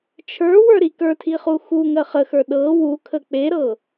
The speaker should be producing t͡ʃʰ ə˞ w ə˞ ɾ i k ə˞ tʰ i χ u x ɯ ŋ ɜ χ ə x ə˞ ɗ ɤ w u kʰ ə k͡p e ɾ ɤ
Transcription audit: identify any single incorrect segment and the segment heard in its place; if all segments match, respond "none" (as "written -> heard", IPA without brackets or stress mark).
ɯ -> u